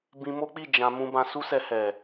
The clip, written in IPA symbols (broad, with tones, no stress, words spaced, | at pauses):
bĩ˧mo˦k͡pi˦˨ d͡ʒã˧ mũ˧bã˧su˦sɛ˧ hɛ˨